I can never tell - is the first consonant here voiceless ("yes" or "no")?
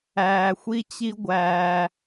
yes